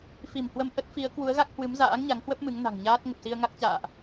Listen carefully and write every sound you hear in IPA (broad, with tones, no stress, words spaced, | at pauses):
fi˧˩mhwə˧m ʔə˦˥t̚fi˨˦ə̯ kwu˨˦ə̯ɣa˦˥k̚ hwɨ˨˦mza̰ː˧˥ŋɲa˨˦ŋhwə˦˥p̚ mɨ˨˦ŋ na̤˨˩ŋɲaː˦˥t̚ ŋə˨˩p̚si˧ə̯ŋa˦˥k̚t͡ɕa̰ː˧˨ʔ